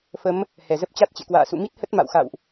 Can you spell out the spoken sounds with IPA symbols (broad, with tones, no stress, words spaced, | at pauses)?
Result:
fə˨˦m | hɛ˧˩zə˦˥p̚ t͡ɕa˦˥t̚t͡ɕḛ˧˨kwa̰ː˧˨ sṵ˧˨mi˦˥t̚hə˦˥t̚ ma̰˧˨wxa̰˧˨wʔ